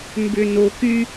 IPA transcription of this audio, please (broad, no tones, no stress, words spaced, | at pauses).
mbʏ no ky